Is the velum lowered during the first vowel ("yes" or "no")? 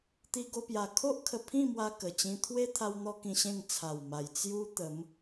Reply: no